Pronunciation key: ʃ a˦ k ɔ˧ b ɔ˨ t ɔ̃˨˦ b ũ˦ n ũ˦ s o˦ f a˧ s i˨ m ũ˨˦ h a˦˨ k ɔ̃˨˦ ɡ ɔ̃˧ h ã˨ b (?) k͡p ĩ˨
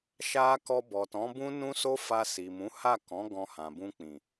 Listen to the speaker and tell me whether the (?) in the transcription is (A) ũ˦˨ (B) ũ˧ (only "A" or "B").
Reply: B